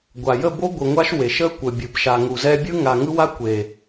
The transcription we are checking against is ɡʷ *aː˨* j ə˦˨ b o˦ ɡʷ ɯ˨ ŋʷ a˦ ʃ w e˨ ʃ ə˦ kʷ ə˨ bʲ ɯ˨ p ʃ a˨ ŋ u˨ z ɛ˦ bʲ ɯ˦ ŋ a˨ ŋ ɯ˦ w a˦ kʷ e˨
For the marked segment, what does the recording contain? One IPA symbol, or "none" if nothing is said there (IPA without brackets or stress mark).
a˨